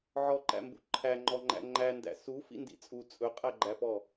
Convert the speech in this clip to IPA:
ʕ ɔ ǃ æ̰ m b ṵ ǃʰ æ ŋ͡ǃ ɔ ŋ͡ǃ æ̰ ŋ͡ǃ æ n d æ̰ s u f ḭ n d ḭ t͡sʼ u t͡sʼ ɵ qʼ æ ɡ͡ǃ æ p ɔ

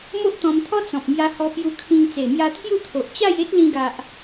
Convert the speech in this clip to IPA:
m o˦ ʔ t̪ ɔ̃˧ m t̪ʰ ɔ˦ t͡s ɔ̃˨ p̚ m j a˧ h ɔ˧ p j u˧ kʰ ĩ˧ ŋ t͡s e˨˩ m j a˧ t̪ʰ j u˥˧ t̪ʰ o˨ ʔ t͡ɕ a˥˧ j e˦ t̚ l ĩ˧ ɡ a˨ ʔ

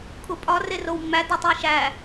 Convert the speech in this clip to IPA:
kʰ u pʼ ɒ r e r o w mː æ d ɒ tˤ i ʃ æ

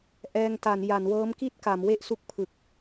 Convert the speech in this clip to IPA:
ʔ ɛː˧ ŋ t a˩˦ n j a˩˦ n w ɤː˦˥ m k i˥˩ t̚ k a˩˦ m w e˥˩ ʔ s u˦˥ k̚ pʰ ɯ˨˩ k̚

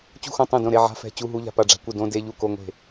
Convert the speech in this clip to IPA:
t͡ɕ ṳ˥˩ x õ˥˩ tˤ õ˥˩ d õ˥˩ ɾ e˧˥˧ ʕ a̤˧˥˧ f ɛ̤˧˥˧ t͡ɕ u˧˥˧ ɦ u˧˥˧ ʎ a̤˥˩ p a˥˩ ɖ͡ʐ a̤˧˥˧ kʷ ɯ˥˩ d õ˧˥˧ d e˧˥˧ ʎ u˥˩ k o˧˥˧ ŋʷ e̤˥˩

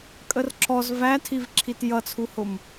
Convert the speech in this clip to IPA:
kʼ ə r ǁ ɔ z v æ tʰ i v ǁʰ i t j ʌ t͡sʰ u h ʊ m

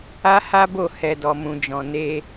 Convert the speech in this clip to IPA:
a˦ h a˦ b o˦˨ h ɛ˨ d ɔ˨ m ũ˨ d͡ʒ ɔ̃˨ n e˧

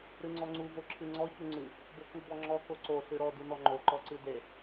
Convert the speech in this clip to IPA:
ɾ ɨ ŋ͡ǀ ɔ ŋ͡ǀ u v o ǁʰ ɨ ŋ͡ǀ ɔ ç u ŋ͡ǀ ɨ | b o k u b ɔ ŋ͡ǁ ɔ k o ǀ o ɬ ɨ ɾ ɔ d u n ɔ ŋ͡ǃ o ǃ ɔ ǀ ɨ d e

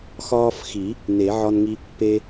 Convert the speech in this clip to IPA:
x ɒː˦ f x i˨˩˦ | n e˨˩˦ ʕ ɒ˦ n ŋ i˦ | p e˦

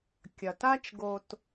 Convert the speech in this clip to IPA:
kʲ ɐ˩ t a˦ t͡ʃ ɡ o˨ t

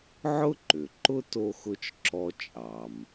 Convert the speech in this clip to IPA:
ʕ ʊ˥ ǃ ʏ˩ ǃ ʊ˥ t o˧ x ʊ˧ t͡ʃ ǁ ɔ˧ t͡ʃʼ ɑ˩ m

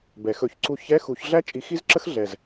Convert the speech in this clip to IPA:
b ɛ˨˩˦ x ɵ˨˩˦ ç ǀ u˥˨ ç ɛ˧˥˧ x u˨˩˦ ç ɮ æ˥ t͡ʃʼ i˧ x i˥ z ǁ ə˥ x ɮ ɛ˨˩ z

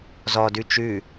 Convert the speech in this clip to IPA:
z ɔ d ʉ t͡ʃ ʉ

